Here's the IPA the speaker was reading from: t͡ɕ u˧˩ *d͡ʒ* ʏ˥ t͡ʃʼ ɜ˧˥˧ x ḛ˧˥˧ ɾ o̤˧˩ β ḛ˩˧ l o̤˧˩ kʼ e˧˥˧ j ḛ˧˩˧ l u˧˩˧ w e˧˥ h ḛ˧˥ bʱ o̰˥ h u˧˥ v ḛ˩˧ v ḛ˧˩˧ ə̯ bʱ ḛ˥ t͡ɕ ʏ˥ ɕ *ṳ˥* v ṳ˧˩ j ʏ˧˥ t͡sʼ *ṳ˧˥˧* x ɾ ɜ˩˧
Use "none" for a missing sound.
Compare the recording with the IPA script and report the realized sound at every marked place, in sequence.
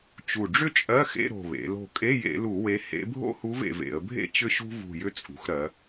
ɖ͡ʐ, ṳ˥, ṳ˩˧

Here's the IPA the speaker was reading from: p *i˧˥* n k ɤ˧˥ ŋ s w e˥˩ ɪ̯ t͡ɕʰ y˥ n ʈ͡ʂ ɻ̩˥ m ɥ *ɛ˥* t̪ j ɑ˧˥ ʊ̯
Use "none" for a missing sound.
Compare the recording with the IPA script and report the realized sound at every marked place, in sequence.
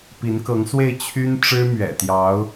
i˧˥, ɛ̰˨˩

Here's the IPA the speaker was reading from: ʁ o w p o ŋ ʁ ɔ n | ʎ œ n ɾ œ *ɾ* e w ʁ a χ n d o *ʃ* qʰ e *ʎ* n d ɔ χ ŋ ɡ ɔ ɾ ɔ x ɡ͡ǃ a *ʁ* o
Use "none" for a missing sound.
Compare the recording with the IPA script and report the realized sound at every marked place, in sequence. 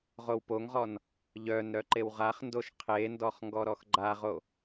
ǃ, ʃ, none, ʁ

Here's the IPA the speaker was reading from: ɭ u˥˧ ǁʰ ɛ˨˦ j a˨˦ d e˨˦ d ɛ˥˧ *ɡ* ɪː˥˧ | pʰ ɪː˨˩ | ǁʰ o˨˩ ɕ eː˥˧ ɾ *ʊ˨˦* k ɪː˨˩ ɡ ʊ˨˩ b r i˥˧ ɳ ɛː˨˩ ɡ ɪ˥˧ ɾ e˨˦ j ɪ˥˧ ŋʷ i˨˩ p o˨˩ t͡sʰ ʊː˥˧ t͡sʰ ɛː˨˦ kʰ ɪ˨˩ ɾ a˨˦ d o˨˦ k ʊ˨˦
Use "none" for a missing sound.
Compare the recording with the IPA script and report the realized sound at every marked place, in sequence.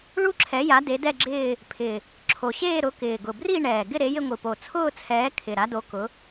ɡ͡ǁ, ʊ˨˦

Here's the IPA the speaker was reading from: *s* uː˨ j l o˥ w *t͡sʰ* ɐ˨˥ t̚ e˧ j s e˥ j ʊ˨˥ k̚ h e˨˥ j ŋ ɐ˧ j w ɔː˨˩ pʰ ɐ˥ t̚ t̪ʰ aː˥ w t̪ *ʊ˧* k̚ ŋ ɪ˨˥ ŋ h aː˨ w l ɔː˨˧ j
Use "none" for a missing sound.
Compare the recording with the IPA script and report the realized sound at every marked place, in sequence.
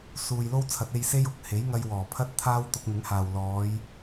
s, t͡sʰ, ʊ˧

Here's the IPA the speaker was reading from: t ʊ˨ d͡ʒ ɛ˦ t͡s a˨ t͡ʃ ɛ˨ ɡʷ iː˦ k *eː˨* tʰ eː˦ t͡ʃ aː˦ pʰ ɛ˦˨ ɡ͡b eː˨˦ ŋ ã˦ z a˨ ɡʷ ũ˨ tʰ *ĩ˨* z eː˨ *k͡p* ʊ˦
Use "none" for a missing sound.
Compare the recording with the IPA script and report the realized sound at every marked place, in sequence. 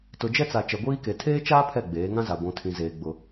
e˨, ĩ˨, ɡ͡b

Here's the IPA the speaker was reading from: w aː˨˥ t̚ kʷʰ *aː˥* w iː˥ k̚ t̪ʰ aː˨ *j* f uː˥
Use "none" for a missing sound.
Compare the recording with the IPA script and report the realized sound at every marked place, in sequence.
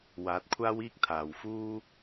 aː˥, w

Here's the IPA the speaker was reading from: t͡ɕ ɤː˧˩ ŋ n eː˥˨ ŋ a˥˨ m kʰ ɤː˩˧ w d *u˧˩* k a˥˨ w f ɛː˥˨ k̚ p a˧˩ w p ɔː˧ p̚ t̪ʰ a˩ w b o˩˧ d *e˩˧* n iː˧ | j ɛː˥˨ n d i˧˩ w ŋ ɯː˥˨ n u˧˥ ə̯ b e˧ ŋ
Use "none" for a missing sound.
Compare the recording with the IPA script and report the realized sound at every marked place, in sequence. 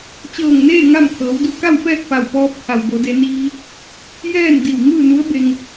u˧˩, e˩˧

